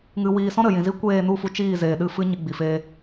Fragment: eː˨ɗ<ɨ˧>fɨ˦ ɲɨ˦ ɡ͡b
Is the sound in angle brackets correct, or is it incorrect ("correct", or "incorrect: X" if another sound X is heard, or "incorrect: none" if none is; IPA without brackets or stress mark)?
correct